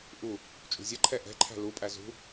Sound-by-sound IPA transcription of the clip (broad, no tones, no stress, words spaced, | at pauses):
ʔu | t͡ʃʼṳzʲʌǃʰɛ ʔɛ̤ǃʰæ̤ lupʼæ zṳ